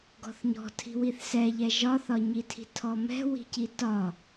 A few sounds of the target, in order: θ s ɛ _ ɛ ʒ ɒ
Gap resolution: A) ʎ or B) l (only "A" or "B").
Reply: A